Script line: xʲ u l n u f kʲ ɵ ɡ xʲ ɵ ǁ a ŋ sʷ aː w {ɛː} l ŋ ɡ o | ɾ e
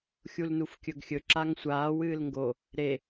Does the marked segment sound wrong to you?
yes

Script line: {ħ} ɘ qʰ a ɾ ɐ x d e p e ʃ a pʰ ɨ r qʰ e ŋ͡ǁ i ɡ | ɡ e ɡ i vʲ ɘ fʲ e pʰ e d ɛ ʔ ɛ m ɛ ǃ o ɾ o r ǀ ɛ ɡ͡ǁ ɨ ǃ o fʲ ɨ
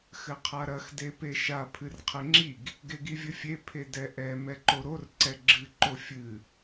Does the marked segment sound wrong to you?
yes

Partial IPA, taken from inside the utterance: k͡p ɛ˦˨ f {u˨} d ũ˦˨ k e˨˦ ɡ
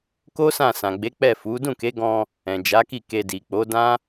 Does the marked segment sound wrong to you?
yes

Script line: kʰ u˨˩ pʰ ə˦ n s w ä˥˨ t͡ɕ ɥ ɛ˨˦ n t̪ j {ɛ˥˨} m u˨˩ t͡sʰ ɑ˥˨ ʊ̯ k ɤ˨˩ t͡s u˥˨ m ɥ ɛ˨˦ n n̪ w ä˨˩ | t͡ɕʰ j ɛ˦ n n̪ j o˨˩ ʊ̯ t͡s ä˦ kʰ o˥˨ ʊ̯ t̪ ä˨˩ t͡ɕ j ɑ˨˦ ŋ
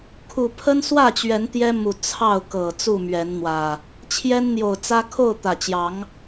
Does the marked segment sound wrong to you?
yes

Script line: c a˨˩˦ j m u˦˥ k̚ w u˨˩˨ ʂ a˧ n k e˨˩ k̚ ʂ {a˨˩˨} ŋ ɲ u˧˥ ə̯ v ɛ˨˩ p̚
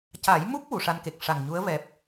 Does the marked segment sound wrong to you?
yes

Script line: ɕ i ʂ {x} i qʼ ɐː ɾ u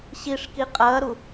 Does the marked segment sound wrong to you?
yes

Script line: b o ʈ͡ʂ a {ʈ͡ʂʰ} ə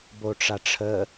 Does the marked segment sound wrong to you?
no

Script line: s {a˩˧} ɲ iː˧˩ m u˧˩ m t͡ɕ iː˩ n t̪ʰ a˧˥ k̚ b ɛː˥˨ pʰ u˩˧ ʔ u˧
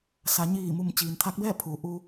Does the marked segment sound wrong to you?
no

